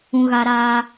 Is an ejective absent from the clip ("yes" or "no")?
yes